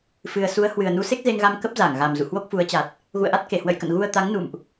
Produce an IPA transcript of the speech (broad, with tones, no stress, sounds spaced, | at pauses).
f ɨ˨˩ ə̯ s u˨˦ ə̯ h w ɨ˨˩ ə̯ n u˨˦ s e˦˥ k̚ z e˧ ŋ ɣ a˧ m k ə˦˥ p̚ z a˧˩ ŋ ɣ a˨˩ m z ṵ˧˨ h w o˦˥ k̚ f u˨˦ ə̯ t͡ɕ a˨˩ t̚ | ɣ ṵ˧˨ ə̯ ʔ a˦˥ t̚ k e˧˩ h w ə̰˧˨ j k ə̰˧˨ n ɣ u˧ ə̯ t̪ a˨˦ ŋ n ṵ˧˨ m ʔ